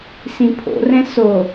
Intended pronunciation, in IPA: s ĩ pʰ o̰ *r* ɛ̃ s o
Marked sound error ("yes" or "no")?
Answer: no